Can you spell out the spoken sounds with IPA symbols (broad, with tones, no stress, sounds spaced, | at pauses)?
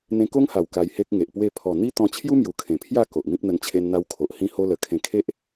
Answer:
n̪ ẽ˧ k o˦ ŋ h a˨˩ w k a˧ j h e˦ k̚ ŋ e˨ ʔ p w e˥˧ pʰ ɔ˨˩ n̪ i˦ t̪ ɔ̃˧ t͡ɕʰ j u˦ m j u˨˩ kʰ ẽ˨˩ pʰ j a˥˧ k o˨ ʔ m ĩ˦ p̚ n̪ ə˧ n t͡ɕʰ e˧ n n̪ a˧ w kʰ o˨ ʔ h ĩ˧ h o˧ l ə˨˩ kʰ ẽ˧ kʰ e˦ ʔ